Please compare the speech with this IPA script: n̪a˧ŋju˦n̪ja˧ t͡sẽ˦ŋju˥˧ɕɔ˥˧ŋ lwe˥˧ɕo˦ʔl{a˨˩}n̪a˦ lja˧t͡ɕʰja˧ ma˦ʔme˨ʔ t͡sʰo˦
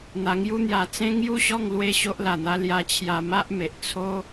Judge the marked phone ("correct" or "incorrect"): correct